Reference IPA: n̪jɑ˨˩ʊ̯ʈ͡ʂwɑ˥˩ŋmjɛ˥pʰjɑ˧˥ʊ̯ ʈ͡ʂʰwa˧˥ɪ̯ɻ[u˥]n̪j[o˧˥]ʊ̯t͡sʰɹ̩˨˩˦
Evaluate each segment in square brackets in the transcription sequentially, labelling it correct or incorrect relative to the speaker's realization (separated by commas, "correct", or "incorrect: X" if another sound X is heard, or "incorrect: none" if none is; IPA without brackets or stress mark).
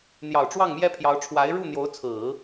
incorrect: u˥˩, correct